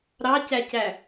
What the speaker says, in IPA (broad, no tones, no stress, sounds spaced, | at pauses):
ɾ ɑ c æ c æ